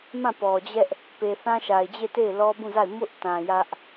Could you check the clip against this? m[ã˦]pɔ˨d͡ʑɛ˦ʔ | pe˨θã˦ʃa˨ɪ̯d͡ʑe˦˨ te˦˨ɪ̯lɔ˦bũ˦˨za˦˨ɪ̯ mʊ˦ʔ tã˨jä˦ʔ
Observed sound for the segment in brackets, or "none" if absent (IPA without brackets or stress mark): ã˦˨